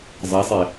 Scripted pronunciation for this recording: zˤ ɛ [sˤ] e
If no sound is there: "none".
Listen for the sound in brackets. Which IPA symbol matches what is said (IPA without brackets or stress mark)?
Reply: sˤ